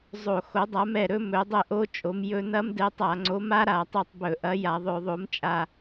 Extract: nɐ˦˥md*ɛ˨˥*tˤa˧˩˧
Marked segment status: correct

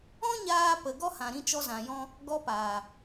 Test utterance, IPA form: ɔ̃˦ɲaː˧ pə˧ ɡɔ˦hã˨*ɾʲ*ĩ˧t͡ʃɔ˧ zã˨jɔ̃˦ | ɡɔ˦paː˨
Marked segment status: incorrect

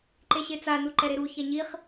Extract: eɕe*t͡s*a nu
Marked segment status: correct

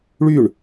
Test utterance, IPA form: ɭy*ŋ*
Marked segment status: incorrect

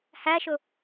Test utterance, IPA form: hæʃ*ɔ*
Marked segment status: incorrect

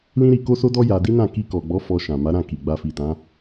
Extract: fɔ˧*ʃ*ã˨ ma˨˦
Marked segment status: correct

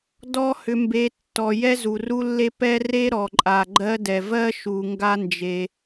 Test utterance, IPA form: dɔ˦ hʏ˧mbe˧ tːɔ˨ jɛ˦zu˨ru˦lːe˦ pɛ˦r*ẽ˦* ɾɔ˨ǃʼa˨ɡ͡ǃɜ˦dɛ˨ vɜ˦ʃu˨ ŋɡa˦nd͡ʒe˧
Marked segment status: incorrect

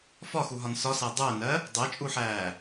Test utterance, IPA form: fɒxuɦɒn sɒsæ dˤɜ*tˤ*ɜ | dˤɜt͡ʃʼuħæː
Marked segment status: incorrect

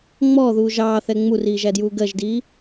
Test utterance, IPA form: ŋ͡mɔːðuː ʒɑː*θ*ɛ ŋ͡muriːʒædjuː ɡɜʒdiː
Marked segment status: correct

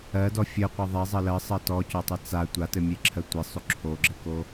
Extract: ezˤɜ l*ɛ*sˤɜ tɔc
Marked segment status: incorrect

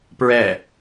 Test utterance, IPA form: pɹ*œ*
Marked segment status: incorrect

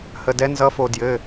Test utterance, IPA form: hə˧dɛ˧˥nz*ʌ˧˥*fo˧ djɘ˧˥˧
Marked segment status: correct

